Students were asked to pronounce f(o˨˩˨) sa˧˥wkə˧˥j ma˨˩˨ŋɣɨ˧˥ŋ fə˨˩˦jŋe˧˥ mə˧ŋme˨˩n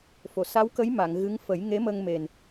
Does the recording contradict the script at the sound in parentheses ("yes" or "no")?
no